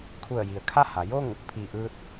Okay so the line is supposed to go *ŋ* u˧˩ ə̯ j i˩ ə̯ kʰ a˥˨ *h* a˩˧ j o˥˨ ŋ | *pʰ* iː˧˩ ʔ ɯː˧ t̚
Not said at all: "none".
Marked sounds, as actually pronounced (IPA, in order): kʰ, h, pʰ

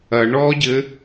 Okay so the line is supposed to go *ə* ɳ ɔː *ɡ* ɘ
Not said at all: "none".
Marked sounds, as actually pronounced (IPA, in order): ɐ, ɟ

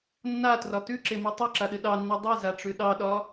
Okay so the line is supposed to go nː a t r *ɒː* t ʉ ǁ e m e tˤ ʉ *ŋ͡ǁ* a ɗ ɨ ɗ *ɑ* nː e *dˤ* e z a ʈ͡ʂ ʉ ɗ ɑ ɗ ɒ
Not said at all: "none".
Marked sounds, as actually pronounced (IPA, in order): ɒ, ǁ, ɑ, dˤ

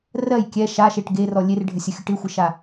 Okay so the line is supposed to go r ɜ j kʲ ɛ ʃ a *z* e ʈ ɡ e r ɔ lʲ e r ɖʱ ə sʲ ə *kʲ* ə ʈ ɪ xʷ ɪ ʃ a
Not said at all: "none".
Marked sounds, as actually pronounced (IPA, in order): ʃ, xʲ

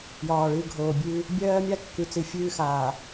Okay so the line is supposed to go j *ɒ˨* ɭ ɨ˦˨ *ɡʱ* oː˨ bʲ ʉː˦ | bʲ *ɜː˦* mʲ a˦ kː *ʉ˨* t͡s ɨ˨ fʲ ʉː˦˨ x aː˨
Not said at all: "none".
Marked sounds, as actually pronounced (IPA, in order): ɒː˨, ɡʱ, ɜː˦, ʉ˨

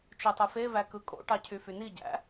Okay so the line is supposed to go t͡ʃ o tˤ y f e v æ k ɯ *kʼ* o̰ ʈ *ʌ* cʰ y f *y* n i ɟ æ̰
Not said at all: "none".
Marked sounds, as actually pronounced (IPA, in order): kʼ, ɑ, y

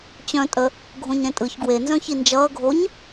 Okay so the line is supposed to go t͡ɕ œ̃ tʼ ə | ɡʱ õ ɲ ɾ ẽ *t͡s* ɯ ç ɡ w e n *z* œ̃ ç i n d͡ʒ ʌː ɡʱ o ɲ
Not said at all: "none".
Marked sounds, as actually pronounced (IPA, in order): tʼ, z

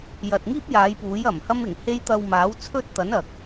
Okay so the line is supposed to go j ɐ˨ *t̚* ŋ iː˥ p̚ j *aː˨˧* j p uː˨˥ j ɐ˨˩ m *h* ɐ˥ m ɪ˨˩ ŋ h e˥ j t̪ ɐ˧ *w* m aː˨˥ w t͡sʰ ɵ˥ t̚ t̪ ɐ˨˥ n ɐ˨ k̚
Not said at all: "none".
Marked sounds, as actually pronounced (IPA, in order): t̚, aː˨˧, h, w

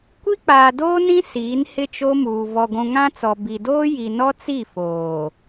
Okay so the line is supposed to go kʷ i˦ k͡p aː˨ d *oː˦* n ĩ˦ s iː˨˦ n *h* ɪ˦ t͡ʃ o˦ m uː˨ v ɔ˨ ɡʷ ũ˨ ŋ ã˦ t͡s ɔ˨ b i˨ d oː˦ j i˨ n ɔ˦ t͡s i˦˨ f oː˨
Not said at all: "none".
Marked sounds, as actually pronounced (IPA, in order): oː˦, h

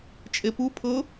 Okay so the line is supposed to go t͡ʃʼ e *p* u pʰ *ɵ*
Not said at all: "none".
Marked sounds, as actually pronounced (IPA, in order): p, ɤ

